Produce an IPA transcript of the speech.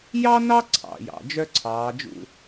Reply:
jɑ˥nɑ˥ ǀʰɑ̰˩˧˩jɑ̰˩˧˩d͡ʒœ˥ǀʰɑː˩˧ d͡ʒṵ˦˨

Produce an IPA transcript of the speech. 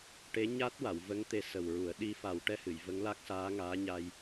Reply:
ʈe˧˥ ɲa˦˥t̚wa˨˩˨wvə˧˥ŋ t̪e˧sə˨˩wɹu˨˩˦ə̯ ɗi˧ fa˨˩˦wʈɛ˧hɨ˨˩˨j və˧˥ŋla˦˥k̚saː˧˥ ŋaː˧˥ɲa˧j

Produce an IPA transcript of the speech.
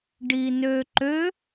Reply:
ɖinøǃø

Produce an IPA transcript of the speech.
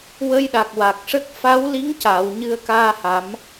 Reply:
wə˧jɗa˨˩k̚wa˨˩k̚ʂə˦˥k̚ fa˧˥wli˧˥ŋca˨˩˨w ɲɨ˧ə̯kaː˧ha˨˩˦m

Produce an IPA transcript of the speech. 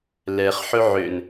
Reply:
lɛχ ħɵʕøn

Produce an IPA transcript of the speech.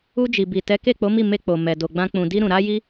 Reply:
u˧d͡ʒi˨bi˨ tɛ˨˦ke˦˨k͡po˨˦mi˦˨ me˧k͡po˨ mɛ˨do˨ɡ͡bã˧ k͡pũ˨di˧ ɾũ˨ɾa˧ji˧

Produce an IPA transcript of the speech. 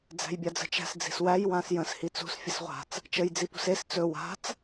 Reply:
d͡zæ̤jbʲad͡zə̤t͡ʃæ̤s d͡zi̤swæj wãsjə̃s hit͡sṳs fʲəsʁʷa̤t͡s | t͡ʃəj d͡zipṳses t͡sɵ wa̤t͡s

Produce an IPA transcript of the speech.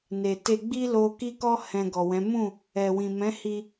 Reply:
ne˨te˧ɡ͡bi˦ lo˧ki˦kɔ˦ hɛ̃˧ɡɔ˨wɛ̃˨˦ mũ˦˨ | ɛ˨wĩ˨mɛ̃˨˦ hi˧

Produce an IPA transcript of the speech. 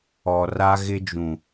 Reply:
ɔ˨ ra˦ɣɪ˦d͡ʒũ˨

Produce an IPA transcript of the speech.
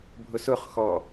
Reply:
bʱʊsʊχxɔ

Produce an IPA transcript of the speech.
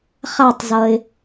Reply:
χa˧˩tˤzʌ˩ɪ̯

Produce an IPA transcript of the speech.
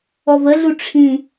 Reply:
ɔvəɮu ʈ͡ʂʰĩ

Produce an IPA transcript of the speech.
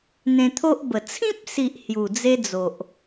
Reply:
n̪ẽ˧t̪ʰo˦ʔbə˨˩ t͡sʰĩ˦p̚si˨ʔ hju˨˩d͡ze˦d͡zo˨ʔ

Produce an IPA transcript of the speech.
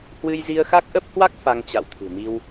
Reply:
hwɨ˧jzi˧ə̯xa˦˥k̚ ʔə˦˥p̚hwa˦˥k̚ fa˧ŋt͡ɕa̰˧˨wt̪ʰɨ̤˨˩ mi˧w

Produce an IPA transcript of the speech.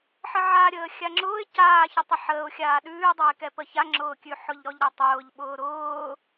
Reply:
ħəʕaɾʲəː xʲaŋ͡ǁʊːɪ̯ caːçətˤə ħəːʊ̯xʲaː ɗʉːdˤoɪ̯kɛ pəçaŋ͡ǁʊːkʲʉ ħʊʎɾɔʎɾotˤʊːʎ ɓʊːɾʊː

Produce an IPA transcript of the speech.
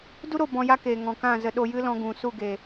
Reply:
du˦ɾo˦˨ bɔ̃˧ja˦keː˨ ŋɔ̃˨kã˦˨zə˧ ɗo˧jɨ˦ lɔ̃˧ɡũ˨ su˦˨ɡe˨

